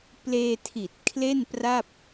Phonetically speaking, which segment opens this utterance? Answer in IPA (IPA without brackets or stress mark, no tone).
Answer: p